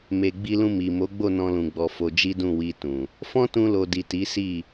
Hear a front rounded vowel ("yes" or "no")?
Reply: no